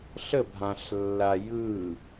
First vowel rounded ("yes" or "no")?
no